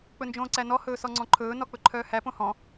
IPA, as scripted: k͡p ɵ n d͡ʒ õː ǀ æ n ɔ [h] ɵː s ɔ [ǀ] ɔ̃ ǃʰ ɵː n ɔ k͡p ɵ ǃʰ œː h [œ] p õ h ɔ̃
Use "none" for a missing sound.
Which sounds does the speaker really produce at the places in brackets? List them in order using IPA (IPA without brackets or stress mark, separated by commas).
h, ŋ͡ǀ, æ